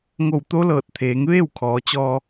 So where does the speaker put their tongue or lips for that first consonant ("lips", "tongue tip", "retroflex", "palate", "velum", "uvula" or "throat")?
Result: velum